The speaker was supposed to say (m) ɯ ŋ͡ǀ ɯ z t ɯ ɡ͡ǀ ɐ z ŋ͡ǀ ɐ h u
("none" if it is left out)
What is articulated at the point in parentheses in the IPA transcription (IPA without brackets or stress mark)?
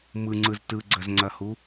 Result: m